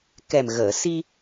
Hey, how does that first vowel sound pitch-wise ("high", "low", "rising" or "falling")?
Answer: low